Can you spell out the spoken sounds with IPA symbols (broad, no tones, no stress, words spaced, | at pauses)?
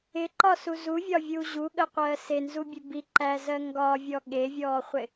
ɪǃɒsu zuvʲɒvʲuː ʑuɠəqʷɜː senzubʲe bi ǃæzɜ ŋɡɒvʲɔ ɠevʲɔːχʷɪ